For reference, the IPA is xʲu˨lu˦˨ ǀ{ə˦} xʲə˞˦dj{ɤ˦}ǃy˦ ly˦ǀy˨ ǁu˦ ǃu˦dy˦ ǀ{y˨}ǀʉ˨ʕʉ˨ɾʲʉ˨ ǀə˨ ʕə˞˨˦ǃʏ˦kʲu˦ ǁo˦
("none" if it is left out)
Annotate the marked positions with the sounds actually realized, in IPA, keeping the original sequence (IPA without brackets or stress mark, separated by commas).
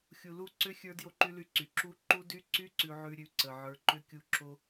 ʏ˦, o˦, y˦